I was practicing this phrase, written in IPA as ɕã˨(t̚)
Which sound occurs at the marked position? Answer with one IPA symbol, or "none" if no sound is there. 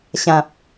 p̚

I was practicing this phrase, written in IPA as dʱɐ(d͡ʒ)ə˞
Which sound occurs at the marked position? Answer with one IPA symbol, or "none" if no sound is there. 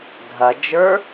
d͡ʒ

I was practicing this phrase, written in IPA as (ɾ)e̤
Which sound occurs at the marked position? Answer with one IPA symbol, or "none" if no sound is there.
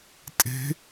tʼ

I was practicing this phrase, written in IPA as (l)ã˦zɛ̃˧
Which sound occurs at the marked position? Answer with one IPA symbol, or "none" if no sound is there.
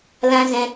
l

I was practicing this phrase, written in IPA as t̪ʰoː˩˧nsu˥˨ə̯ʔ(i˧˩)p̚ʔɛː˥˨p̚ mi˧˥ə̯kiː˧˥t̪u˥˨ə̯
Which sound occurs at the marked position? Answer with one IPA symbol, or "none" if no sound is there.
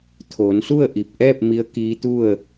i˧˩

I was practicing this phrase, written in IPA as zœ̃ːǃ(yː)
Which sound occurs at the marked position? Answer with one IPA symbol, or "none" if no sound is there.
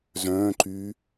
yː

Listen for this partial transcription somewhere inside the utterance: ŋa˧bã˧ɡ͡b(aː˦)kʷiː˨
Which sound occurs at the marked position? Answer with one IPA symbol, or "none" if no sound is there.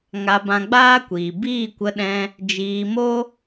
aː˦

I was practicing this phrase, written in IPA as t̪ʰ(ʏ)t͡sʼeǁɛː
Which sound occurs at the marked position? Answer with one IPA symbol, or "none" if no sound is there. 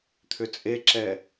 ʏ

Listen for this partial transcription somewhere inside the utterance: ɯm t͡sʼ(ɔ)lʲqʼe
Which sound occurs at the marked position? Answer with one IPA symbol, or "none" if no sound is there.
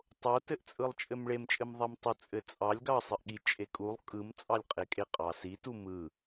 ɑ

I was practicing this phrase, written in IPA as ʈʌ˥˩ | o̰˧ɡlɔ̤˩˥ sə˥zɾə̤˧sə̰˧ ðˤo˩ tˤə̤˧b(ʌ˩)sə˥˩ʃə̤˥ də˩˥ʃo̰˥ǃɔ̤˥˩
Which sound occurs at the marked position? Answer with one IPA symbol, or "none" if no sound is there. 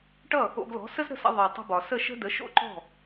ɒ˩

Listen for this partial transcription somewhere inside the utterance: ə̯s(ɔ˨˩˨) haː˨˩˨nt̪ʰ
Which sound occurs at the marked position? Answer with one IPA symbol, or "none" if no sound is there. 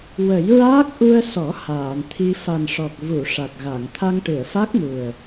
ɔ˨˩˦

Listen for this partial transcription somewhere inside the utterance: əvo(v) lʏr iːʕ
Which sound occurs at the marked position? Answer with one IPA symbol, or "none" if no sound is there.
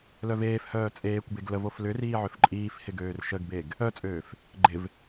f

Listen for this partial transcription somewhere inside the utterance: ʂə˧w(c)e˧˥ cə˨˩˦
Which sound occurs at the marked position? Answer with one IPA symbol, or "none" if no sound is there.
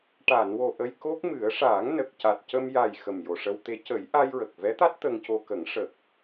t̪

